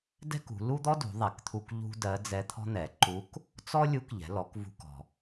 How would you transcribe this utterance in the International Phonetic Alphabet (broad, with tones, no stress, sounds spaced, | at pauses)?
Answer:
d ɛ̤˥ k ṳ˩˧ l u˥ d̪ ɔ˥ d ṳ˩˧ ðˤ ɛ˩ k t̪ʰ u˧ k ʎ ṳ˥ d ɜ˧˥ d͡z ɛ˧˥ t̪ʰ ɔ̤˥ n̪ ɛ˩˧ ǃ u˧˥ k | t͡s ɔ˥ lʲ u˧˥ k ʎ ɛ̤˩˧ l ɔ˩˧ k v ṳ˧ k ɔ̤˩